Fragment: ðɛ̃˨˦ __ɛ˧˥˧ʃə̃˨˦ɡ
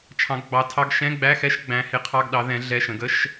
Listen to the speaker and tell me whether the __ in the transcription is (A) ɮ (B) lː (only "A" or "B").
A